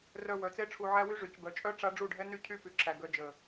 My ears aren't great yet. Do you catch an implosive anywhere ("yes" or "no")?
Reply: no